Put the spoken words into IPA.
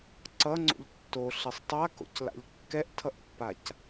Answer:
ǀ ʌ ŋ͡ǀ o̰ ʎ tː o ɬ e sˤ tˤ a k o̰ c l a̰ ʎ kː ɛ ʔ tʰ ʌ ʔ pː a c

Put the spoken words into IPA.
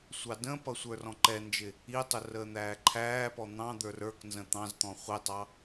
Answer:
sʷ ɑ d ə̃ p ʌ sʷ ə˞ r ɔ̃ ǃ ɛ n d͡ʒ ɪ | i tˤ ʊ r əː n̪ æː ǃʰ æː p ɔ n̪ ɑ̃ d̪ ə˞ r ə˞ k n z ə̃ t̪ ɑ̃ z t̪ ɔ̃ χʷ i tˤ ɑ

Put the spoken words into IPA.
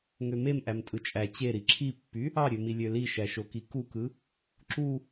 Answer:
ŋ ø m e m ʔ æ m tʼ ɯ t͡ʃʼ æ t͡ɕ e ɾ i ǁʰ i pː y | ɑ ɾʲ ø m i lʲ ø l i ʃ æ ʃ o k i k u k ɯ | ǁ u

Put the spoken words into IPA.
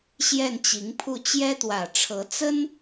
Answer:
ɕ j ɛ˥˩ n t͡ɕ i˧˥ ŋ pʰ u˥˩ t͡ɕ j ɛ˥ t̪ w ä˨˩ ʈ͡ʂʰ ɤ˧˥ t͡s ə˥ n

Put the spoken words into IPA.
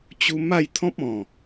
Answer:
t͡ɕ u˧ m a˥˧ j t̪ʰ ɔ̃˦ p̚ ɔ̃˨˩

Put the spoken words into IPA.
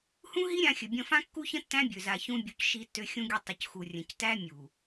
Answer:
h ũ˦ ɦ i˦ ɾʲ ã˧ xʲ ɵ˨ bʲ ə̃˧ f ã˦ kː u˦ ç ə̃˦ tː æ̃˦ bʲ ø˨ z a˨ ç ũ˧ bʲ u˨ c ʃ i˧ tː ø˧ xʲ ũ˧ ɡʲ ə˧ tˤ ʏ˨ c x u˨ rʲ ə̃˨ c t æ˦ mʲ u˨

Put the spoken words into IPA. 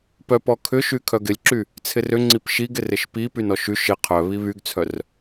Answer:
p œ p ɔ kʰ ʏ ʃ y kʰ œ ɡ ɪ lʲ ǁ y | t͡sʰ ɪ r ʏ ŋ͡ǀ i p ʃ i ɡ ɪ r ɪ ʃ p i p y n ɔ ʃ y ʃ ɪ qʰ œ β i β y ɡ t͡sʰ œ r

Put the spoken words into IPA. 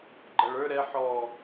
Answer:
ɡ͡ǃ ʌ ɭ ə˞ ɾ ɛ ħ ɔ

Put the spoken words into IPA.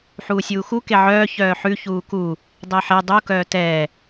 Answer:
ħ uː sʲ uː x u k e ʕ œː ç œː ħ ʉ ç uː k u | dˤ e ħ e dˤ u k œː t ɛː

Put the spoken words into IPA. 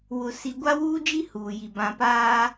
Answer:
w ʊ˨ s i˨ ɡʷ a˦ w uː˦ d͡ʒ i˦ h uː˨ j i˨ b ã˨ p aː˦

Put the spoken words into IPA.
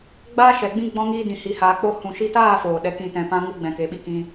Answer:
ɡ͡b aː˧ ʃ ɛ˨ ɡ͡b ĩ˦ ɡ͡b ɔ̃˧ ŋ iː˧ d ĩ˨ h i˨ h aː˨ k͡p o˧ h ũ˨ ʃ i˧ t aː˦˨ f oː˨ ɗ ɛ˨˦ k ĩ˨ t ɛ̃˨ p ã˧ ŋ u˦ ɡ͡b ɛ̃˨ k e˨ ɓ i˦ k ĩ˧

